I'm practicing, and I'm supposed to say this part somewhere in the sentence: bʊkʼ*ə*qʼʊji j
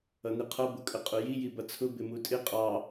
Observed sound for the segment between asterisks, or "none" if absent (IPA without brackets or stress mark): ə